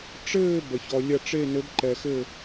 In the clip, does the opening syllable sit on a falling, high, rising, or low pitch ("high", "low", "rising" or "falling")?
falling